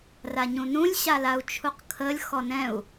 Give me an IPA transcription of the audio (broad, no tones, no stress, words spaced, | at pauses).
raɲũnũlʲ ɕalau̯t͡ʃʰuqkʰəlʲ xɔnɛ̃u̯